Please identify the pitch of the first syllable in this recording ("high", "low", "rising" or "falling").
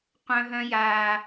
high